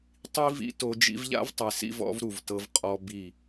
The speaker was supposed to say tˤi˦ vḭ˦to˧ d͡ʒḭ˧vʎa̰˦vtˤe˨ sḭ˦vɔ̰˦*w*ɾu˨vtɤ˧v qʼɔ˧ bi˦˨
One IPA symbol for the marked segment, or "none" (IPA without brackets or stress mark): v